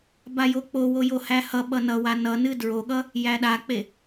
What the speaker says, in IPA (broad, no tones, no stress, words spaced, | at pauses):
bajok͡powo johæhʌɓʌ nʌwa nʌnɨ dɹoɠʌ | jæɗak͡pe